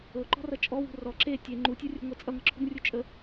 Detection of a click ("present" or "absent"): present